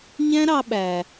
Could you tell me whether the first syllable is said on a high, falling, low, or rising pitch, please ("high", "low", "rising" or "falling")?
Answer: high